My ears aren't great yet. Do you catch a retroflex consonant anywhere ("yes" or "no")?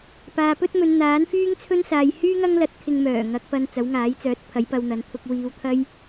no